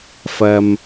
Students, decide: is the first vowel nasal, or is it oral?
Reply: oral